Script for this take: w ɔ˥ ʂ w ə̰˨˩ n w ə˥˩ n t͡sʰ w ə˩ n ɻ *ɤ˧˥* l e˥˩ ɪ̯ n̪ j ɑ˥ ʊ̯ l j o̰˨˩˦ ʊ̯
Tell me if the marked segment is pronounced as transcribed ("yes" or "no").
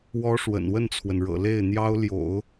no